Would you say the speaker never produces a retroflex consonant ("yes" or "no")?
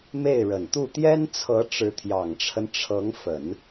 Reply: no